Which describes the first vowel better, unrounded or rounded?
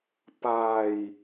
unrounded